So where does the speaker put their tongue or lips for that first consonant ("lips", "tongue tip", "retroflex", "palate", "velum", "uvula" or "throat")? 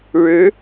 retroflex